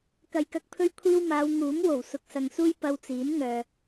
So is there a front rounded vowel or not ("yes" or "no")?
yes